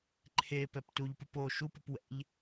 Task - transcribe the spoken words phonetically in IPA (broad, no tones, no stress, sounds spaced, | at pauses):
ǃʰ e p ɛ p t u ʎ p ɯ p o ʃ u p u p w ɛ̰ ʎ